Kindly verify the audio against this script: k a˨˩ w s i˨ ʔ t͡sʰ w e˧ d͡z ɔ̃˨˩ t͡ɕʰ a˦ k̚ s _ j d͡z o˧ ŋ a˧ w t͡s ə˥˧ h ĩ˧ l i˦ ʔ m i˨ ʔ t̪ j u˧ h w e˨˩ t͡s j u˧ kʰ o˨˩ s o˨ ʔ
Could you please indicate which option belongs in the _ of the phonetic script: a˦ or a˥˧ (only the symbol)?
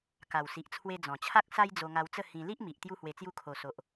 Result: a˦